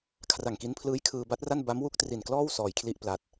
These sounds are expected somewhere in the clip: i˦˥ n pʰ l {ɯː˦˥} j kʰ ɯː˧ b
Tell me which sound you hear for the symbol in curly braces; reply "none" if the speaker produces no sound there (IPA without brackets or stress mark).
ɯː˦˥